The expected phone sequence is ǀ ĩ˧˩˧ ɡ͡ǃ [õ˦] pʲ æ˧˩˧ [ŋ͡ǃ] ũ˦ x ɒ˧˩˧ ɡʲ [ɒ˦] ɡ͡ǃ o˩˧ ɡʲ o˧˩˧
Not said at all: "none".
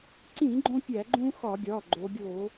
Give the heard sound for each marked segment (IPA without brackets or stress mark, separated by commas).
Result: õ˦, ɡ͡ǃ, ɒ˩˧˩